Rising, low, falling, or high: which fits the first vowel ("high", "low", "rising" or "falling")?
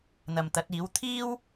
low